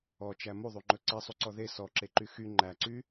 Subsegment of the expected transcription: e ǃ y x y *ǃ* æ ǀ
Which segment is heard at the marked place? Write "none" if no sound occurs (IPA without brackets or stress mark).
ŋ͡ǃ